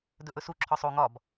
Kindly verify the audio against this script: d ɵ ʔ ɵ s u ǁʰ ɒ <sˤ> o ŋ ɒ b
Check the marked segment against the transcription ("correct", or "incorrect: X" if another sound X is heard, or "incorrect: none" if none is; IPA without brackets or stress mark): correct